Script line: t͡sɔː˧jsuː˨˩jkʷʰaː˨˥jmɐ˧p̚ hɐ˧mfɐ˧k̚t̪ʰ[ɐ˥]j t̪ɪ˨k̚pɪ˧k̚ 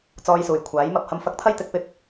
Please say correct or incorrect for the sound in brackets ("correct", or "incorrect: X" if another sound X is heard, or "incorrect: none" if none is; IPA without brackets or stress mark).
correct